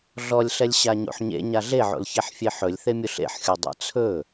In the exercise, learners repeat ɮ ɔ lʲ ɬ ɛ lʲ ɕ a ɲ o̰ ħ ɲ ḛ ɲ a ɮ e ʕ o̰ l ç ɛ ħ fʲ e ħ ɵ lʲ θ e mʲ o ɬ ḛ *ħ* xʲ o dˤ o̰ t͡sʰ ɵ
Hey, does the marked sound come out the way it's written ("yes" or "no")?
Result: yes